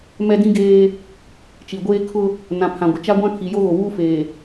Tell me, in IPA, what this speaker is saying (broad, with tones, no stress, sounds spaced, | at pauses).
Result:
m ɛ˦ d ĩ˦ ɡ eː˦ | t͡ʃ i˨ ɡʷ eː˦ kʰ ʊ˦ | n ã˨ pʰ ã˨ ɡʷ ɪ˨ t͡ʃ a˦ ɡʷ ã˦ kʰ i˨ j o˦ ɣ o˨ w uː˦ f eː˨